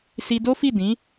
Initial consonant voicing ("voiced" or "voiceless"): voiceless